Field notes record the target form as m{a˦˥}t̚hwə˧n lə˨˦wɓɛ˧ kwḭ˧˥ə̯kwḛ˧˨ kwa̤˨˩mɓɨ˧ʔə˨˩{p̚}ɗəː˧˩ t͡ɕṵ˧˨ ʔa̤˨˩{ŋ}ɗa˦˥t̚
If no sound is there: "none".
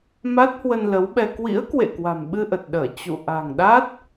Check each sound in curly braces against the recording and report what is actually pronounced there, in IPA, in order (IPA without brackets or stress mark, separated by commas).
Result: a˦˥, t̚, ŋ